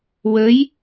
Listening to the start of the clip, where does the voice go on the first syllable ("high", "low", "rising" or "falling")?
rising